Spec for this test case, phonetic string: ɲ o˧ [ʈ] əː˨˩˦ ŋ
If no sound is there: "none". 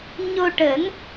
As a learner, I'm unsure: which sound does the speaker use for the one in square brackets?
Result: ʈ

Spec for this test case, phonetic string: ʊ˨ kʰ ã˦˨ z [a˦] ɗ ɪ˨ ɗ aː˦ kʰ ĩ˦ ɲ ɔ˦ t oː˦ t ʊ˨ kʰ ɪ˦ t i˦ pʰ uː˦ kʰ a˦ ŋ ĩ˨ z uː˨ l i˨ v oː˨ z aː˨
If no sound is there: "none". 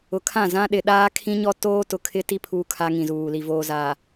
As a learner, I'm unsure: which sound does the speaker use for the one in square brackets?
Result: ã˦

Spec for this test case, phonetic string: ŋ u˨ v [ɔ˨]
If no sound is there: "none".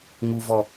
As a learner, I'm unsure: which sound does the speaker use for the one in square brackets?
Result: ɔ˨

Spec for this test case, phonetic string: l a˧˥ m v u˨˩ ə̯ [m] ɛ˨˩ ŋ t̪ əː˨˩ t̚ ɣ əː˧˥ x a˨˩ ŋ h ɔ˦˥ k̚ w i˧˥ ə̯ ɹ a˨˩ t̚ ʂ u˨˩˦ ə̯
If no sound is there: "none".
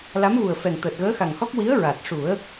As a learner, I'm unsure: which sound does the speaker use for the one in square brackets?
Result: f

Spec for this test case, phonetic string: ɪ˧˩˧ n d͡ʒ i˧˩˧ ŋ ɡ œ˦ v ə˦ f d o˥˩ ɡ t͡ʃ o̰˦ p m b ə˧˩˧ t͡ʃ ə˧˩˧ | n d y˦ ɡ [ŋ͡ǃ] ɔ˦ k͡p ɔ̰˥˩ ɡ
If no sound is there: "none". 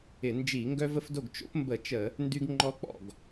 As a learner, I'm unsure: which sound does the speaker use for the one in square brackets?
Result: ŋ͡ǃ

